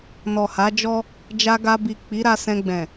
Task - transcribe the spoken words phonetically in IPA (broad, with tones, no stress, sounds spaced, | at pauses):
n ɔ˨ h a˨˦ d͡ʒ ɔ˦ | d͡ʒ a˧ ɡ a˧ b i˨ k͡p i˨˦ ɾ a˧ s ɛ̃˧ ɡ͡b ɛ̃˨